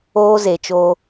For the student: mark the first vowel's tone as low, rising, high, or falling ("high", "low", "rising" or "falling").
high